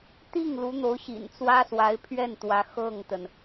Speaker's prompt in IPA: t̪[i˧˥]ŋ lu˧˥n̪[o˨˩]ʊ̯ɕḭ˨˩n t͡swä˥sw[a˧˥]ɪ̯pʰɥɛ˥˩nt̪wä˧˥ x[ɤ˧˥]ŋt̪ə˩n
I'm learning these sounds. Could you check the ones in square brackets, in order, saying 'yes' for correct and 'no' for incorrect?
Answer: no, no, yes, no

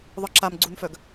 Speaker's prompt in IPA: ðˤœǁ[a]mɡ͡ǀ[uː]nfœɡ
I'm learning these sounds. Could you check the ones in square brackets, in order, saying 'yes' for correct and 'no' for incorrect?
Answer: yes, no

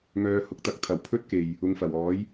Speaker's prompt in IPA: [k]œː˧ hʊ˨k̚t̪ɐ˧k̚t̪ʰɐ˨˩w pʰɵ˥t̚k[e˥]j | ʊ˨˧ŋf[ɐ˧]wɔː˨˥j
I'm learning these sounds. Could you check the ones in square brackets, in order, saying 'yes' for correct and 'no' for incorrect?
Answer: no, no, no

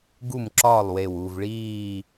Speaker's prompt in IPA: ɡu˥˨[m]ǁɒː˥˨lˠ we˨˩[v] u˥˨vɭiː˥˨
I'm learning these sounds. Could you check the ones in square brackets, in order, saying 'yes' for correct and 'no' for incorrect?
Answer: yes, no

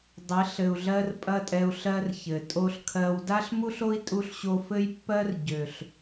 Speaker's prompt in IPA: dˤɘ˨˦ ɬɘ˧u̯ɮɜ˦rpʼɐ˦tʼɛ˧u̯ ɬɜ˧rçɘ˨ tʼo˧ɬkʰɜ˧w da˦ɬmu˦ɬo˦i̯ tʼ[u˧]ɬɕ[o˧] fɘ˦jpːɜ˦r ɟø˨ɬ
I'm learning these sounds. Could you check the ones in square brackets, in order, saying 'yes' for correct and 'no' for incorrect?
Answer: yes, yes

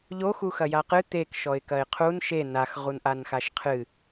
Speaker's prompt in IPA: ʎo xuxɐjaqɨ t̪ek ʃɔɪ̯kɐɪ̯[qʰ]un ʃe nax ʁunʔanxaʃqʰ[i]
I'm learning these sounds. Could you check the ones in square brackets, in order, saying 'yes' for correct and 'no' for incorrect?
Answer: yes, no

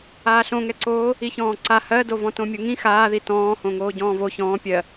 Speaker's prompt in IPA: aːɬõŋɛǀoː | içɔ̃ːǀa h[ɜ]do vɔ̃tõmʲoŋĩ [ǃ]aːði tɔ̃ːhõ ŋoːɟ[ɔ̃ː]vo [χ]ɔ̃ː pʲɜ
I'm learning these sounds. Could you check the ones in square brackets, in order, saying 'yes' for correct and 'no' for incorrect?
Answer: yes, no, yes, no

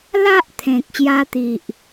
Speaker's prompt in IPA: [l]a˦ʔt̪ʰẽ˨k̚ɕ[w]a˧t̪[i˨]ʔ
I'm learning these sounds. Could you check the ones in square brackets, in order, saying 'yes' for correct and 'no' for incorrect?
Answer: yes, no, yes

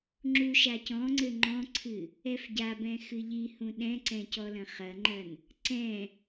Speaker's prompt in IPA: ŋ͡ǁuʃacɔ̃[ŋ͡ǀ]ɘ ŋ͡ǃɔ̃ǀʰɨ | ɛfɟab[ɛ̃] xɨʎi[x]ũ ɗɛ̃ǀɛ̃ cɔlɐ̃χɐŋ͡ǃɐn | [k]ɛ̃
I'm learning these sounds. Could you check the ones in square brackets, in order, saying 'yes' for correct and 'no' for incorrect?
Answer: yes, yes, no, no

